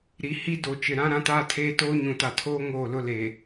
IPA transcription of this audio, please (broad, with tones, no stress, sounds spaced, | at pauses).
ɾ i˨ h i˦ d o˨ t͡ʃ ɪ˨ ɾ ã˦ ɾ ã˦ t aː˦ tʰ eː˦ t oː˦ ɲ ũ˨ t a˨ tʰ oː˦ ŋ oː˦˨ l ʊ˦ l e˨